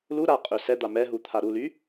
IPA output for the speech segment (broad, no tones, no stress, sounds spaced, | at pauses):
l u ɾ a qʼ ø s ɛ d̪ a m ɛ ɦ u t̪ʰ a ɾ u l y